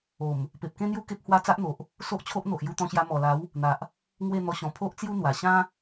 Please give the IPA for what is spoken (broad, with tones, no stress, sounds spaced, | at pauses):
o˨˩ m | p e˨ p̚ k ẽ˦ n̪ j u˥˧ k e˦ p̚ h w a˥˧ t͡s a˦ ʔ n̪ o˨ ʔ | s o˦ ʔ t͡ɕʰ o˦ ʔ n̪ o˨ ʔ j u˧ t̪ ɔ̃˧ ɕ j a˧ m ɔ˨˩ l a˨˦ w | n̪ a˨ ʔ | ŋ w e˥˧ n̪ ɔ˧ ɕ ɔ̃˨˩ pʰ o˦ ʔ t͡s j u˦ n̪ w a˨˩ ɕ ã˦